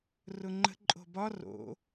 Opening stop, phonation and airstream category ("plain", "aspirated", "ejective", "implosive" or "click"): click